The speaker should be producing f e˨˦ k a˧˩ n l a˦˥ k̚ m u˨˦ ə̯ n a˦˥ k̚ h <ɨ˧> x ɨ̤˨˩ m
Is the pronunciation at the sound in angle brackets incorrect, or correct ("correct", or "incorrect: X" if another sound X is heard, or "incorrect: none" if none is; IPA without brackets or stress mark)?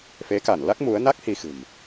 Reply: incorrect: i˧